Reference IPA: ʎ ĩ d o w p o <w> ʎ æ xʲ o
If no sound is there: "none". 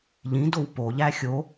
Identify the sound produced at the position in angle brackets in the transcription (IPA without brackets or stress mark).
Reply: none